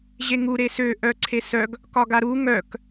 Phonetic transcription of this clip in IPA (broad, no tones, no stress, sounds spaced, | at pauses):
ʑ e ŋ u ɾ e s ø ʔ œ ǀʰ e s œ ɡ | k ɒ ɡ a ɾ u ŋ œ k